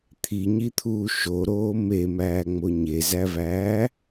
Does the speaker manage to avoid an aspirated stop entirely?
no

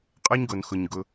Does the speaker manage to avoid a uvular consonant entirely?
no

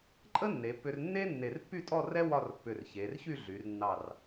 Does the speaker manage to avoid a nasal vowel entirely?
yes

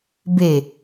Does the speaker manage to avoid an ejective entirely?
yes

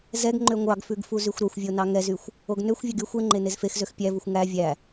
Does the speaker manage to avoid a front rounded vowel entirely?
no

